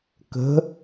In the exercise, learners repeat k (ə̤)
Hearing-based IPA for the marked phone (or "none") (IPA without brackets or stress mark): ə̤